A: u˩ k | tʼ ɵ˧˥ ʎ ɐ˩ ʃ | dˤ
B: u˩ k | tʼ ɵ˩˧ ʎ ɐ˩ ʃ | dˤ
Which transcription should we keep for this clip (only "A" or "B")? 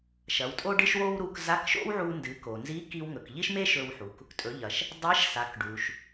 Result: B